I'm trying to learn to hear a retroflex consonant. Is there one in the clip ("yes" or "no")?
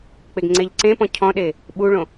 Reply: yes